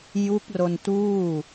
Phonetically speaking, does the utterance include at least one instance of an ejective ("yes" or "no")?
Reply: no